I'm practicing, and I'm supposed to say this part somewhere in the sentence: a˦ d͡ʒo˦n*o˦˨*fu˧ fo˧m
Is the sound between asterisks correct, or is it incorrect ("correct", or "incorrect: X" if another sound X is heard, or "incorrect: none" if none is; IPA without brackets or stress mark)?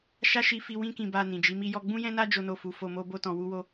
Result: correct